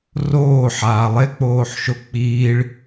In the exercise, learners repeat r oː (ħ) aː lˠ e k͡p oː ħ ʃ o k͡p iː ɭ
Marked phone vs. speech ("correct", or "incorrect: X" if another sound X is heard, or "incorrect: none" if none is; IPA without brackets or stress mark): correct